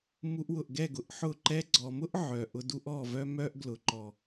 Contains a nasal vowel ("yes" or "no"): no